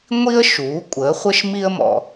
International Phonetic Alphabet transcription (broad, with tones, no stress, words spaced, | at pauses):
ŋʷi˥ə̯ ʃuː˩˥kʷʼəː˩˥χʷə˥ʃ mi˥ə̯mɔ̰˧